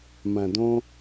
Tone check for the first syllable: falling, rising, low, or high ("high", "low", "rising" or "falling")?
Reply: low